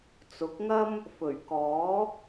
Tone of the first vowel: rising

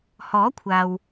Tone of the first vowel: rising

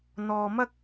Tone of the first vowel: low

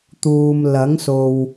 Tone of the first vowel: low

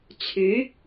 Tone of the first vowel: rising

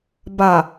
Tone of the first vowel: low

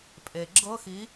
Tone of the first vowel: low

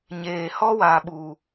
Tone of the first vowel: low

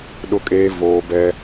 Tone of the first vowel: high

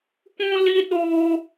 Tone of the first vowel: high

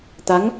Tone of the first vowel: rising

